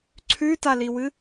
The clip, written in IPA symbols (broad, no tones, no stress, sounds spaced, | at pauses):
ǀʰ ʉ t a l i w ɨ